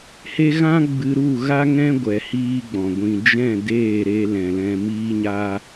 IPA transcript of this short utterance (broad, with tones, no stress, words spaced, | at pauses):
he˦ ɣã˦ ɡ͡bɨ˧ɾu˦˨ɣa˦ ŋɛ̃˦ɡʷɛ˨ hiː˦ɡ͡bɔ̃˨ɡʷĩ˧ d͡ʒɛ̃˦˨deː˦˨ɾe˧ lɛ̃˨lɛ̃˧miː˦ ɲa˧